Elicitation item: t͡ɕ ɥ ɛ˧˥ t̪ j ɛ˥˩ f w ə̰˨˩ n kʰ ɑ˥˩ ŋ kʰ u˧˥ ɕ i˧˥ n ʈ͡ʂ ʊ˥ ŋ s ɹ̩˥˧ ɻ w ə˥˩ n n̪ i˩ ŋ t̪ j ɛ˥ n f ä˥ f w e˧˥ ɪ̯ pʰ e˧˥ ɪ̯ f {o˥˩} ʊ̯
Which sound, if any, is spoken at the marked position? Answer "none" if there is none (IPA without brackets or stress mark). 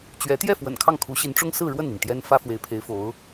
o˧˥